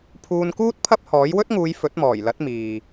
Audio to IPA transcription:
pʰ uː˧ n k uː˥ t̚ pʰ ɐ˥ p̚ h ɔː˨˥ j w ɵ˥ t̚ ŋ uː˨˧ j f ɵ˨˥ t̚ m ɔː˨˩ j l ɐ˨˥ t̚ m iː˨

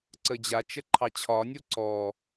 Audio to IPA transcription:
ǀ ə d͡ʑ a t͡ʃ ə ǃʰ ɑ t͡ɕʰ ɒ nʲ o ǀ ɔ

